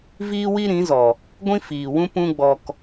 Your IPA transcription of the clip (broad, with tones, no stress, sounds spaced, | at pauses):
v iː˦ w i˦ ɾ ĩ˨˦ z ɔ˨ | ɡʷ ĩ˦ f iː˨ w ũ˦ p ũ˧ ɡ͡b ɔ˨ k